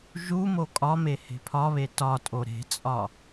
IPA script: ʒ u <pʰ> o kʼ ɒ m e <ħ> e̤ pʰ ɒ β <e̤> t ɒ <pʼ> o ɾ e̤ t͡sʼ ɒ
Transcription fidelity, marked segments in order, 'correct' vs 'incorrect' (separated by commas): incorrect, incorrect, incorrect, incorrect